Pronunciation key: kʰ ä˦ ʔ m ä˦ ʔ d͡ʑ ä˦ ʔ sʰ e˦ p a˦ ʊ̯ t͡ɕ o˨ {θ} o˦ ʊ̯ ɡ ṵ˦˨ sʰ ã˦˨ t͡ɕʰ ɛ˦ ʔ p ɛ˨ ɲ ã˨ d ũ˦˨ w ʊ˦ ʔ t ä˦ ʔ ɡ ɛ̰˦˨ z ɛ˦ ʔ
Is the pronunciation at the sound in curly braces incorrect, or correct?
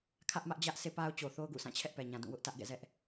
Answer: correct